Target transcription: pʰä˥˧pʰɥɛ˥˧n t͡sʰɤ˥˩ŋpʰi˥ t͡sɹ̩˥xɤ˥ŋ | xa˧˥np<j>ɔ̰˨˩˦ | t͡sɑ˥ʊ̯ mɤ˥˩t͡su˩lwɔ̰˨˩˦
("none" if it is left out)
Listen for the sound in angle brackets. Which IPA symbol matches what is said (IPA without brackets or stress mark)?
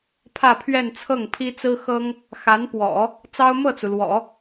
w